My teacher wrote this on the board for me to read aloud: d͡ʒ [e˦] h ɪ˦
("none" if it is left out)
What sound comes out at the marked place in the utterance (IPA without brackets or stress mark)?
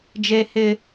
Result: e˦